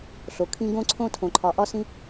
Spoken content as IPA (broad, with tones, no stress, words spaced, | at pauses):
ɬo˨kʰĩ˧ ɡõ˦ǀʰõ˦ tʰõ˨ǃʰɒ˨ʔɒ˦sĩ˦